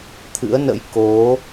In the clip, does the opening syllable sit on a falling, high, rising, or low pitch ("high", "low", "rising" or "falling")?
rising